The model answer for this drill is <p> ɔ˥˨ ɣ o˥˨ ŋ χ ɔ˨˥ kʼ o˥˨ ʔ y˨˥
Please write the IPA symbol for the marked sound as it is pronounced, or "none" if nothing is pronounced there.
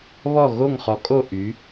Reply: β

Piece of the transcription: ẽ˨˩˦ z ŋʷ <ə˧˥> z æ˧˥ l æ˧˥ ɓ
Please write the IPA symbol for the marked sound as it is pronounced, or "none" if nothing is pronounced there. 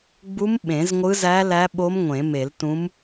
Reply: ɯ˧˥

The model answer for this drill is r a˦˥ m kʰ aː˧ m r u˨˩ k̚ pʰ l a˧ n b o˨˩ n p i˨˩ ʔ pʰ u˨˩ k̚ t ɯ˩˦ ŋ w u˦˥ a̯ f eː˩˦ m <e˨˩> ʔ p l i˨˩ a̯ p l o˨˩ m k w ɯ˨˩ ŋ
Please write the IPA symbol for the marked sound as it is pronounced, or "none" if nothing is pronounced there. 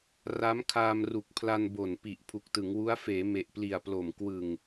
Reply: e˨˩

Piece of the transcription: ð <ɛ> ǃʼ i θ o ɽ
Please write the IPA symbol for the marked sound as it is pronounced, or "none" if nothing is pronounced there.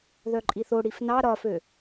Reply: œ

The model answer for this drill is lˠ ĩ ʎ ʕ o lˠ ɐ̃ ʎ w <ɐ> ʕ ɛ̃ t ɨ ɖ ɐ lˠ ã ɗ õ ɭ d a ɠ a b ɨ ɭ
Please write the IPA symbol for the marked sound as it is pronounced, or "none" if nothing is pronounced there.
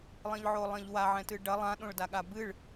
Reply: a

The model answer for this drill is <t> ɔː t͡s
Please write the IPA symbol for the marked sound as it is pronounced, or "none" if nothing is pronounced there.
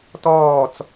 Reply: t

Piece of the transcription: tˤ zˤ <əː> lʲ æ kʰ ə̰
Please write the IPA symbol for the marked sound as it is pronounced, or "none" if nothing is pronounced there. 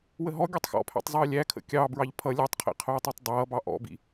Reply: əː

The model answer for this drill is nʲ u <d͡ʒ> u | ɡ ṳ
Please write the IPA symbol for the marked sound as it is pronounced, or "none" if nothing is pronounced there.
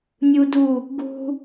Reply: d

